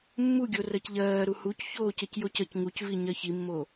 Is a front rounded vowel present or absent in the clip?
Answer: absent